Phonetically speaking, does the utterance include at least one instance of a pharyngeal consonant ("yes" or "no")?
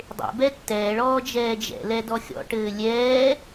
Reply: no